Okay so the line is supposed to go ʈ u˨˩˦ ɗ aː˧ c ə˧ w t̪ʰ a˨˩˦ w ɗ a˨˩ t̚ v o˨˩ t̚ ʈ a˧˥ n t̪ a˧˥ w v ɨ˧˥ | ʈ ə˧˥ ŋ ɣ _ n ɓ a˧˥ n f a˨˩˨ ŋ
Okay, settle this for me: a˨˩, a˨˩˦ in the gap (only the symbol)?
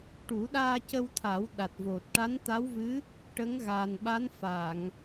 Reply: a˨˩